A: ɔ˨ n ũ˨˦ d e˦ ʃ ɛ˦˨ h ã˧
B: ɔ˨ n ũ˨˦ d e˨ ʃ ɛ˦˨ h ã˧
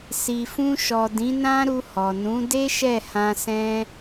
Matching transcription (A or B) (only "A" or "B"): A